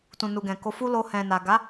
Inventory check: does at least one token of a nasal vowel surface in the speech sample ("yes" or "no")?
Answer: yes